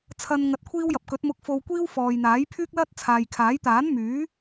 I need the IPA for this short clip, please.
t͡sʰ ɐ˧ n ŋ ɐ˧ t̚ kʷʰ iː˥ w j ɐ˨˥ p̚ k ɵ˨˥ t̚ m ʊ˧ k̚ f o˧ w kʷ iː˥ w f ɔː˨ j n̪ aː˨˥ j pʰ yː˥ k̚ l ɐ˥ t̚ t͡sʰ aː˨ j kʰ aː˨˥ j t̪ aː˨˥ n m yː˨˥

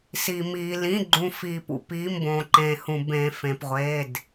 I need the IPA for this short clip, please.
s i˩ m iː˩ l ĩ˩˧˩ ɡ͡ǃ ũ˩ f iː˩ p ṵ˩ p iː˩˧˩ m b õː˩ ǃ ẽː˩ h ũ˩ b ẽː˩ f ẽ˩ p ʁʷ e˩˧˩ d

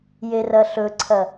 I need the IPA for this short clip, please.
j e r ɐ ɬ ɵ ǀʰ ɐ

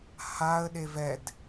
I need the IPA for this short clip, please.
h a ə̯ ɗ e v ɛ d

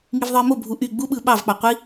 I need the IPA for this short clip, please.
ŋ i v ðˤ ɯ e̯ m o bʱ u ʔ y ɡ͡b u ɓ ɯ ɓ ɑ v k͡p ɑ qʷ i

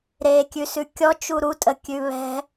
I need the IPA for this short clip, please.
ɾ e kʲ ʉ s ʉ kʲ ɔ t͡ʃ u ɾ u tʼ ə kʲ ʉ β ɛ̤

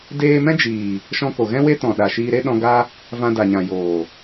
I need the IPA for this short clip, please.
d eː˧ m ɛ̃˦ d͡ʒ iː˨ | ʃ ɔ̃˧ k o˨ ɣ ɛ̃˦ w e˦ t ɔ̃˨ ɗ a˨ ʃ iː˧ ɾ e˦ ɗ ɔ̃˧ ɡ a˦ | v ã˧ d a˨ ɲ ã˨ j oː˨

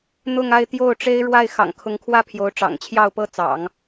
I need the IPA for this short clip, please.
n̪ ʊ˥˧ ŋ a˥˧ ɪ̯ t̪ j o˥˩ ʊ̯ ʈ͡ʂ e˥ ɪ̯ ɻ w a˥˩ ɪ̯ x ɑ̰˨˩ ŋ kʰ ʊ˧˥ ŋ kʰ w ä˥˩ pʰ j o˧˥ ʊ̯ ʈ͡ʂ ɑ̰˨˩ ŋ t͡ɕʰ j ɑ˥˩ ʊ̯ p ɤ˥ t͡s ɑ̰˨˩˦ ŋ

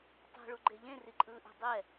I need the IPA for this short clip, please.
tˤ e̤ ɭ u ɡ͡ǃ e ʎ ẽ r i ǃʼ ɯː ʔ e̤ dˤ ɛ

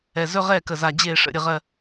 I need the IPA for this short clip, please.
ɛ˨ z ɵ˦ ʁ ɛ˦˨ k ə˨ z a˨ d͡ʑ e˦˨ ʂ ə̰˦˨ ɾʲ ə˦ ʁ ɜ˦

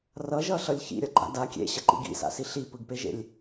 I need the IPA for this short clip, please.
r ʌ ʒ ʌ ɬ ʌ lʲ ç ḭ ɾʲ ʌ ɡ͡ǃ a̰ d a kʲ ḛ ɕ ʌ ǃ ḭ ɡ ḭ s a̰ s i ɬ i p ɯ ɡ p e ʒ ḛ lʲ

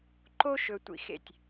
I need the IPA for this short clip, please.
ǃ o˦ ʃ ɵ˨ tʷ ḭ˩ x ḛ˩ tʲ

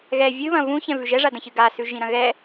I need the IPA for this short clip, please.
ɣ ɛ vʲ ɨ β ɐ̃ v ũ ç ɛ̃ v ʉ ʒ ɛ ʐ a d ɐ̃ ç ɨ ɡ a s ʉ ʒ ĩ ɾ ɐ̃ ɣ ɛ

